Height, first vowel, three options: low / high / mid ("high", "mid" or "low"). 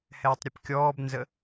mid